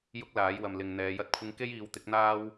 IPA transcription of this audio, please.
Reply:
j ʊ˥ k̚ l aː˨˥ j w ɐ˧ m l ɪ˧ ŋ n̪ ɛː˨˧ j ɐ˥ t̚ kʷʰ ɪ˥ ŋ k e˥ j iː˨˧ w t̪ ɪ˨˥ k̚ n̪ aː˥ w

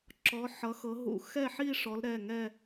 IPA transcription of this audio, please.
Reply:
ǁ ɔ˨˦ ħ ʌ˨˦ x ɤ˨˦ ɦ ṵ˨˦ x ɛ˥˧ ħ i˥˧ ʂ ɔ˨˦ l ɾ ɛ˩˧˩ ŋ ɛ˥˧

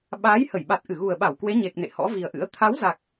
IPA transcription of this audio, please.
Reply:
ɓ aː˨˦ j h ə˧˩ j ɓ a˨˩ t̚ ʔ ɨ˧˩ ɣ u˨˩ ə̯ ɓ a˧˩ w k w e˨˦ ɲ e˨˩ k̚ n ḛ˧˨ h ɔ̰˧˥ v i˨˩ ə̯ ʔ ɨ̰˧˥ ə̯ t̪ʰ a˨˦ w z a˨˩ k̚

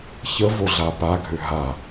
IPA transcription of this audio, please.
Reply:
ç ə v o ɮ a p a ɡʱ ø ɦ a

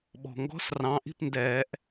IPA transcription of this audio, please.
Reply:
ɓ ɔ̤˩ ŋ ɡ ɔ̤˦ s r ɑ̃˨˦ ʔ i̤˥˨ p n d ɛː˨˩˦ ʔ

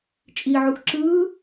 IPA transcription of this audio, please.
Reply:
t͡ʃʼ i ʕ u x ǁ ɯː

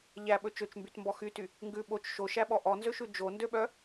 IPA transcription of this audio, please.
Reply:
ʎ æ ɓ ɵ t͡ʃ ø t͡ʃ m b y t m b ɔ x y t y | ŋ ɡ ʉ ɓ o t͡ʃ ʃ o ʃ æ ɓ ɔ ʔ ɔ n z ø ʃ ʉ d͡ʒ o n d ø ɓ œ

